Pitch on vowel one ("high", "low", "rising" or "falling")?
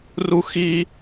high